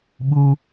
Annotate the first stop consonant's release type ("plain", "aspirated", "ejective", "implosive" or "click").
implosive